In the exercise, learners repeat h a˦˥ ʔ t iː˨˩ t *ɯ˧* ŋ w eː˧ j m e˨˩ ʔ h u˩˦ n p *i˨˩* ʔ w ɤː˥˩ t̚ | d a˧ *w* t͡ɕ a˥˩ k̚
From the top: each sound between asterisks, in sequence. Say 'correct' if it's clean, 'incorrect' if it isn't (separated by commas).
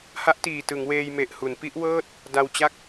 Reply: incorrect, incorrect, correct